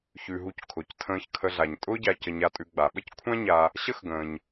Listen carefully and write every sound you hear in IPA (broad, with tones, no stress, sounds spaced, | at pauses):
ç ʉ˩ ɦ u˨ c kʰ ʊ˩ c tʰ ə̃ː˨ ç kʰ ə˨ ɮ a˩ ɲ tʼ ʊː˥ ɟ a˨ c ə˨ ɲ a˨ tʼ ʉ˨ ɡ͡b a˩ ɓ ə˥ c kʷʰ ã˦ ɲ a˨ | ɕ ə˦ x ɡ ə̃ː˩ ɲ